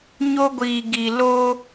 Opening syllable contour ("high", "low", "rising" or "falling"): high